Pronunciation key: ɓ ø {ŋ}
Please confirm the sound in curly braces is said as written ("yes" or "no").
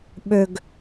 no